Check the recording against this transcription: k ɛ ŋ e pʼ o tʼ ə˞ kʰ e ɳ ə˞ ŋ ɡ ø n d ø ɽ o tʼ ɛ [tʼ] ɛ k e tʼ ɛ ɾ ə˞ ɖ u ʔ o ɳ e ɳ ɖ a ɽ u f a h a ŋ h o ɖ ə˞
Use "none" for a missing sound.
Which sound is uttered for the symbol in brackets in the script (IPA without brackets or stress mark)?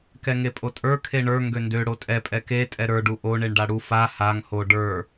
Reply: pʼ